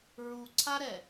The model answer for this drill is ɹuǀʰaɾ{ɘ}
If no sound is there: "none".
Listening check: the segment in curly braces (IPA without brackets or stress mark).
ɛ